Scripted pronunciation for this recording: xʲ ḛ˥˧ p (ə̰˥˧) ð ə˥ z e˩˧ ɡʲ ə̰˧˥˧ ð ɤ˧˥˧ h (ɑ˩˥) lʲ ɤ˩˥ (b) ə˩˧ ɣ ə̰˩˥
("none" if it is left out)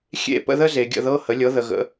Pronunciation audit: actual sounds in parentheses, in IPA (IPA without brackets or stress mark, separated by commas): ə̰˥˧, ə˩˥, ð